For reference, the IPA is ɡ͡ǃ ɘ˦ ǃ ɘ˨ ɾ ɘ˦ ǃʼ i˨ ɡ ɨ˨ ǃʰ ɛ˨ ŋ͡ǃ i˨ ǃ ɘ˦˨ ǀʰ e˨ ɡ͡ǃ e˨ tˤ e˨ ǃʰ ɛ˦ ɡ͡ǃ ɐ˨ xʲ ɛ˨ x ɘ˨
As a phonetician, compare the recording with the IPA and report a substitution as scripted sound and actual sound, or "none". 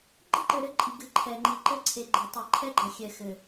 none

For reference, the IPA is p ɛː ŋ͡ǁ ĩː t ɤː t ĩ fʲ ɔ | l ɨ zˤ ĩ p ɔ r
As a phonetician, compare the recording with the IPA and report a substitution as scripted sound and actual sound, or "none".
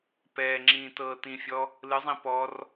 none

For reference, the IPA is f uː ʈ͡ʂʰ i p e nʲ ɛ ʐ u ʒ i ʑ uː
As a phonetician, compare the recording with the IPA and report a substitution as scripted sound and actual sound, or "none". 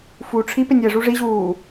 ʒ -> ʐ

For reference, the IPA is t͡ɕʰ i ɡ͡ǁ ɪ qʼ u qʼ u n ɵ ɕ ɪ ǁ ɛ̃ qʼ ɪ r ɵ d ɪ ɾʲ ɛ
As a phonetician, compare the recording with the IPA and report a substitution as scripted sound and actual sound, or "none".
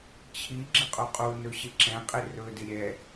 none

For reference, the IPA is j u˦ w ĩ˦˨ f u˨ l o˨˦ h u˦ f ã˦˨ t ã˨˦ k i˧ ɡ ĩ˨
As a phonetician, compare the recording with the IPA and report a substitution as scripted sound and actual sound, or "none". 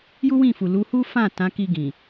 o˨˦ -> u˨˦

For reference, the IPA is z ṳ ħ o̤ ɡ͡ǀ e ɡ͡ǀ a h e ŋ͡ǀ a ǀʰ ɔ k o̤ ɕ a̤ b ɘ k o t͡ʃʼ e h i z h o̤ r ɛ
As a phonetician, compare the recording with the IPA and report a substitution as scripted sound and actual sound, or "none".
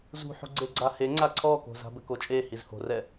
ɕ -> z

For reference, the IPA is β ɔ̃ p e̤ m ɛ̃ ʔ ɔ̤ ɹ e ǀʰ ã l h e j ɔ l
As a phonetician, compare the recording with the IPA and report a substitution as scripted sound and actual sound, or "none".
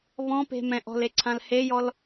ɹ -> l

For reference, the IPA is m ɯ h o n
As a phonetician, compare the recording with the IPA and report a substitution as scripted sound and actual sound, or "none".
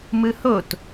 n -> t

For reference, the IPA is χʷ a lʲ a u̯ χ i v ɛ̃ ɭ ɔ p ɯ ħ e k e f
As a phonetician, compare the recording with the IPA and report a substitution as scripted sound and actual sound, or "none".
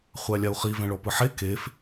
none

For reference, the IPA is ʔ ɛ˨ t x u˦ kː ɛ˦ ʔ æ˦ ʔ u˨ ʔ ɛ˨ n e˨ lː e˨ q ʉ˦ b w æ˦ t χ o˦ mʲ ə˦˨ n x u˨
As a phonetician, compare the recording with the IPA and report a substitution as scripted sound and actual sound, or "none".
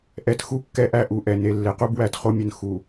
ʉ˦ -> u˦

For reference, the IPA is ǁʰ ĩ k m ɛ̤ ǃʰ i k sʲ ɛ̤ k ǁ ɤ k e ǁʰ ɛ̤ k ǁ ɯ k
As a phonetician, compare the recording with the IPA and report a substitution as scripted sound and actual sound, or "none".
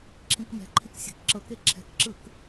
none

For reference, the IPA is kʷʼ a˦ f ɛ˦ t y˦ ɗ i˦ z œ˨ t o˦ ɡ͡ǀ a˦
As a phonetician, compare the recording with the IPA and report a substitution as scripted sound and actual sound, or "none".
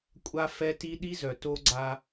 y˦ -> i˦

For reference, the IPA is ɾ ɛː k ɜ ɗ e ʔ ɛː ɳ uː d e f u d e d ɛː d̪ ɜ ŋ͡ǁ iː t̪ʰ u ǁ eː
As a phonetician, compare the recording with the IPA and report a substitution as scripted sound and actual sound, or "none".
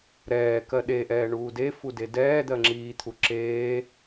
none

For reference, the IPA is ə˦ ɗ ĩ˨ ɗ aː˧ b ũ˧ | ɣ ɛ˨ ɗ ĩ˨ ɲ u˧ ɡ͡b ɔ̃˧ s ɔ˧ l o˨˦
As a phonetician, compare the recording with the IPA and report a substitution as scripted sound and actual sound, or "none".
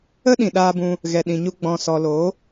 none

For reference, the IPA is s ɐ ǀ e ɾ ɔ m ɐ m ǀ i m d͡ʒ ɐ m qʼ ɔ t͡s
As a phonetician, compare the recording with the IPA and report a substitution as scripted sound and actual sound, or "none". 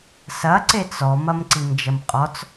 ɾ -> t͡s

